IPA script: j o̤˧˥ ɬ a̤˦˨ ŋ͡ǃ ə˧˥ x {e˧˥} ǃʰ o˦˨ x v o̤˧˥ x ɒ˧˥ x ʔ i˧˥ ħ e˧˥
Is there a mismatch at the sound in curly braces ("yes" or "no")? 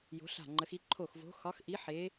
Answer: yes